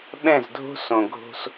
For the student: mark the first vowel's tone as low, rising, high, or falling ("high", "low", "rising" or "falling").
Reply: falling